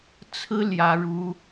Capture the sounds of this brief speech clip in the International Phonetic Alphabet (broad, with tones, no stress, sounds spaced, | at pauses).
t͡sʰ ɹ̩˥ l j ä˥ ɻ u˥